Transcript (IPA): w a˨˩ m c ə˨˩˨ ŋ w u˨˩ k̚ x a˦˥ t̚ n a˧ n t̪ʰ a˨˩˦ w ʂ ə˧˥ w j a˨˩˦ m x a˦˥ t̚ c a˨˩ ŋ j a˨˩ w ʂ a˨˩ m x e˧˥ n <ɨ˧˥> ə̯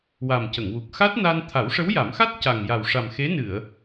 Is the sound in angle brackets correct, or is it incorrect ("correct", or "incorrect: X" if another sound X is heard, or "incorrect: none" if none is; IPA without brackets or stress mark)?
incorrect: ɨ˨˩˨